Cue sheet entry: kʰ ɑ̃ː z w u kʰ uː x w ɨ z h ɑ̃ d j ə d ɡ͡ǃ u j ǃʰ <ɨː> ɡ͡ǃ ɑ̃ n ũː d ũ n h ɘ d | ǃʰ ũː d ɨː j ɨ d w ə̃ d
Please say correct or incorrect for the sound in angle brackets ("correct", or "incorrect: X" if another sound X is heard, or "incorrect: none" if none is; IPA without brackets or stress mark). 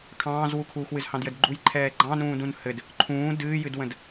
incorrect: ɛː